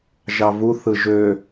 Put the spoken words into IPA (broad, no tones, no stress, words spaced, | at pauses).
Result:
ʒɑvu θɯʒø